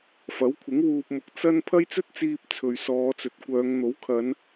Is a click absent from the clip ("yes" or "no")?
yes